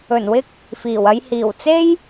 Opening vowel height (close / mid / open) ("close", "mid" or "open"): mid